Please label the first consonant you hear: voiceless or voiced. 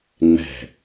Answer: voiced